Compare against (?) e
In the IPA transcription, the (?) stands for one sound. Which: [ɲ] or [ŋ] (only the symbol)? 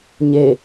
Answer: ɲ